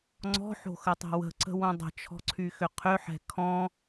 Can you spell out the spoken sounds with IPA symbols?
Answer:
ŋ͡ǀɔ̤ħo̤xətˤɛ̤ wə̤ǀə̤wõ dˤə̤t͡ʃʰɔ̤ǀʰyxʏ qʰʏħɛ̤ kʰɔ̃

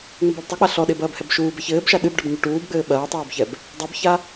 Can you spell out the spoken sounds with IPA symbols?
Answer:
ŋ͡mɘbɐːbtˤi k͡paɬɔɗe bɐːbhɛbʃuːbɛ çɘːbʃa ɗɨb ɖɐbɲuʈuːbɡ͡bɘː ɓɐːtˤuːbçɛb | dˤabça

